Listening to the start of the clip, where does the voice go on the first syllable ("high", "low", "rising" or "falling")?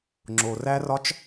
low